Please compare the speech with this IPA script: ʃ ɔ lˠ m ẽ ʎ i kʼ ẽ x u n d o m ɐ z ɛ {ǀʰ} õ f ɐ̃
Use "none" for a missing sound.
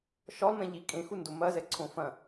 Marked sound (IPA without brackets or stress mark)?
ǀʰ